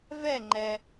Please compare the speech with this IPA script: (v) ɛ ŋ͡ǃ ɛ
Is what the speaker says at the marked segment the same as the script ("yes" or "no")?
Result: yes